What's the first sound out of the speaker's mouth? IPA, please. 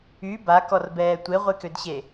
y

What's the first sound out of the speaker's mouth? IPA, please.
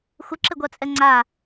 xʷ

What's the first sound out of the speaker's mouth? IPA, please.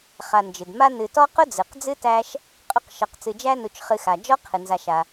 χ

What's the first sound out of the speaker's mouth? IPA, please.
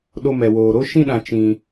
ɗ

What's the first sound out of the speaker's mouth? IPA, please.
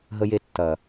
ɦ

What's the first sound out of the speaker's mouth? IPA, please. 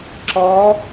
ǁ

